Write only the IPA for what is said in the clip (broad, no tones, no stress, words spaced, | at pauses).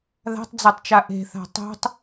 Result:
ða̤tˤd͡zɜtˤt͡ʃa ʔe̤θa̤ tˤo̤tˤ